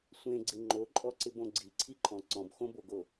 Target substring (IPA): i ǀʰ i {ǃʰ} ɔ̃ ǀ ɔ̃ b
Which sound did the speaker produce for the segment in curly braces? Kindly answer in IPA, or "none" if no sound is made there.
ǃʰ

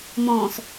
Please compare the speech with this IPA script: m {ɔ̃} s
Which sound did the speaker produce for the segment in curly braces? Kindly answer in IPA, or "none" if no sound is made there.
ɔ̃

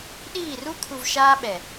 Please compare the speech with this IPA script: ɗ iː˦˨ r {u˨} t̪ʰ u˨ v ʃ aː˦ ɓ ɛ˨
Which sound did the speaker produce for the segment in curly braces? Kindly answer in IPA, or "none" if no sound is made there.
u˦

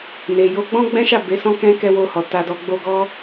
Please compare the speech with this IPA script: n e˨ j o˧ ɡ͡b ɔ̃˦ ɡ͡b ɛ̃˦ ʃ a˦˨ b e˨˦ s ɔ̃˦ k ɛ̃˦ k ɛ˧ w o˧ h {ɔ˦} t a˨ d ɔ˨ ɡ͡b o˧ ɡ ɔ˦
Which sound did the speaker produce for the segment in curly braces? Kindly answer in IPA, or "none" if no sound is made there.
ɔ˨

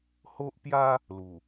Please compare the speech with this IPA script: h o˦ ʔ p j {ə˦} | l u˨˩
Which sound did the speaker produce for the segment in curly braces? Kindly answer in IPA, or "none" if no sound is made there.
a˦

